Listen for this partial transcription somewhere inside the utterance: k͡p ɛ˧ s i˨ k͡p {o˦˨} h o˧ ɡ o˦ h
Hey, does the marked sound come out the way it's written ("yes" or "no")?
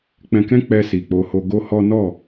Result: no